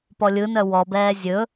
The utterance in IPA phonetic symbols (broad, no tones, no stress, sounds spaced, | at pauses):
p ɔ lʲ ɯ n œ w ɔ b ɛː zʲ ɵ